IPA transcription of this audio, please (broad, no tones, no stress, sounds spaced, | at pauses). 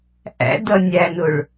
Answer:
ʔ æ̰ d ʌ nʲ æ n ʊ ɭ